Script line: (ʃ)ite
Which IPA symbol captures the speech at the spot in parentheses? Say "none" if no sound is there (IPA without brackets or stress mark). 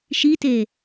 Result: ʃ